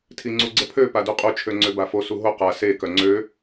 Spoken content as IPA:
tʰiŋ͡ǀuɡ͡ǀəpʰø paduqʼu t͡ʃʰøŋ͡ǀøbafo suɦo qa se kœŋ͡ǀø

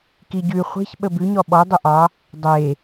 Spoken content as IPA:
kiɟʉ χʷe̤ç ɓəbʉɲɔ ɓɔ dˤəʔɑ | dˤe

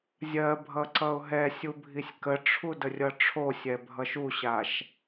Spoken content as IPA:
zʲɜbʱʌ ǀʌʊ̯ɦɛsʲu bʱisʲkəʈ͡ʂʰu dərʲʌʈ͡ʂʰosʲɛ bʱʌʃuɕaʃ

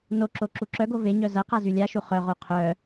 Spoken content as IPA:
noǁo ǁuǁœɡo veɲœ zɐqa zylʲaʃu χœʁo qʰœ

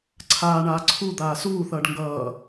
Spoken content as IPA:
ǀʰaːɳaː ǀʰu d̪aːsuːθʌːɖ ŋɡʌː

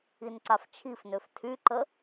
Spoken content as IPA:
inǀaft͡ʃʰifnøf tʰyǃə

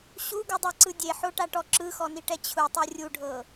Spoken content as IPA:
ɕuɡudˤɛǀɯ dʲeħoʈaʈɔ ǁɯxɔniʈɛ t͡ɕʰutˤɯ rʲuɖʱɤ

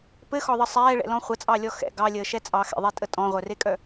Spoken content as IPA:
pɘxɔðˤə sˤɛːɭɛ̰lɔ̃ χʷət͡sʼɑlʲɔ xɛ̰ ɡɑlʲəːʃɛ t͡sʼɑxɛ̰ðˤetʼə tʼɔ̃ʁʷœrekʼœ

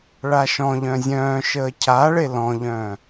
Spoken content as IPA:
ɭaʃɔ̃ʎœ̃ zʲœ̃ːʃəː cʰaɭe lɔ̃ʎœ̃ː

